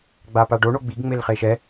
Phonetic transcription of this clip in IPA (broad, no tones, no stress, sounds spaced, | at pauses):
ɡ͡b a p a ɖ o ɳ o ɡ͡b i ɡ ŋ͡m e l χ e ʃ ɛ